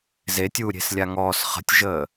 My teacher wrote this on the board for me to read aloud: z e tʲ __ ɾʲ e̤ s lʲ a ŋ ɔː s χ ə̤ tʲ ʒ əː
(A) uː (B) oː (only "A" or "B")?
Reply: A